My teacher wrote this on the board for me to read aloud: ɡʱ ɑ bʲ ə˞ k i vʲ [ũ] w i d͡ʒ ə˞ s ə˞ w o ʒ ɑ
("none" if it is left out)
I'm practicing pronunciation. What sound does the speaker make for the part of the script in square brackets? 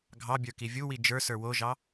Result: u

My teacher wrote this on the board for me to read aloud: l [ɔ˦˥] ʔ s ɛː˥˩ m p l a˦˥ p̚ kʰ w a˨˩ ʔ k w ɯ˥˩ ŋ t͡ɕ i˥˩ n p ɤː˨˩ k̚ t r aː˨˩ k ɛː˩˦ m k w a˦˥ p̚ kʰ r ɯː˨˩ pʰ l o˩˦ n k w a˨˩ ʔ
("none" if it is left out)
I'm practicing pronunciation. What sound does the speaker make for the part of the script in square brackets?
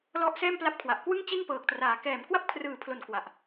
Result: ɔ˦˥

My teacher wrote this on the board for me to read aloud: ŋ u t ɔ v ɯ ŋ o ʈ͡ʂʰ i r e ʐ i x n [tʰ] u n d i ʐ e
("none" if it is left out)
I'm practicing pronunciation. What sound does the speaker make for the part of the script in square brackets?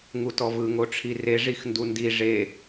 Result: d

